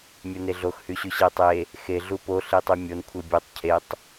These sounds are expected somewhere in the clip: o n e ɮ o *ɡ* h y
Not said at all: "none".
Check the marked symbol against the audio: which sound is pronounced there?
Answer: x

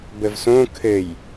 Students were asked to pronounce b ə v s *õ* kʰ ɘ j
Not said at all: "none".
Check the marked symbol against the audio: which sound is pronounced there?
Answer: õ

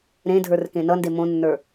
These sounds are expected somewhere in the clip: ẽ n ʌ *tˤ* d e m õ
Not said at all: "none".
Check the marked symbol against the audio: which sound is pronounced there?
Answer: n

